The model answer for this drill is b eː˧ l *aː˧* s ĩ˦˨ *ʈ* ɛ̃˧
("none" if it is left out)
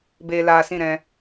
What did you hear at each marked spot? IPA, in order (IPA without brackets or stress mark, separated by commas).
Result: aː˧, ɾ